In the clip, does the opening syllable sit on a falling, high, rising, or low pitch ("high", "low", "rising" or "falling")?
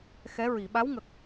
rising